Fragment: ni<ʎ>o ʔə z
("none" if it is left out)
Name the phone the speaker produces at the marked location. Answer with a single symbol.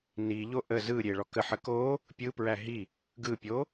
ʎ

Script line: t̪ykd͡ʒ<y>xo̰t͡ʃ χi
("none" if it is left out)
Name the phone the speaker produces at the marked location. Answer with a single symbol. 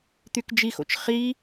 i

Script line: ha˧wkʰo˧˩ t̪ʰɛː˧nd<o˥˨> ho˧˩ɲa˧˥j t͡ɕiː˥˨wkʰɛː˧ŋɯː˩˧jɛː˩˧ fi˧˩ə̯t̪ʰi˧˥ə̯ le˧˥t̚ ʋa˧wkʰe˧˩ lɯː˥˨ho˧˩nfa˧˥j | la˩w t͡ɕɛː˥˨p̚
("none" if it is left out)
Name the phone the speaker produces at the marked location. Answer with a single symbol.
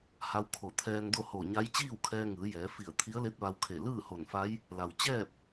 o˥˨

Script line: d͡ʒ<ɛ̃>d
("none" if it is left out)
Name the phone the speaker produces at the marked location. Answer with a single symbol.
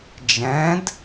ɛ̃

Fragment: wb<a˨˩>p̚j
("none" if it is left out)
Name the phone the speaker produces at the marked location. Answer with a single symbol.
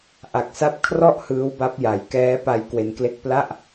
a˦˥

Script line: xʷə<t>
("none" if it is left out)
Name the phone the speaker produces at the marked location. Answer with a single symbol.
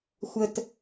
t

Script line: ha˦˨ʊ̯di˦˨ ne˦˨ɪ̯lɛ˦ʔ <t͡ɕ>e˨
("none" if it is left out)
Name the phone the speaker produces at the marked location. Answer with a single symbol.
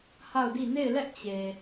t͡ɕ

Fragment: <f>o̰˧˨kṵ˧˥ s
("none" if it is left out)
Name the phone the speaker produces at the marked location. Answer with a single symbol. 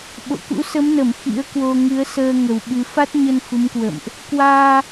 ɓ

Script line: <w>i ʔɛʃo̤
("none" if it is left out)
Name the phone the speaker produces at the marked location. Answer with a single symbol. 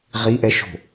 ʁ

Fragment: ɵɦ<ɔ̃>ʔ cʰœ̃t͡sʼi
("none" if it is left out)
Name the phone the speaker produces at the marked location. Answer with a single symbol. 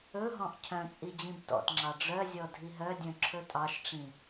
ɔ̃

